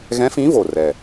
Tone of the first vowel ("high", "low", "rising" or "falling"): rising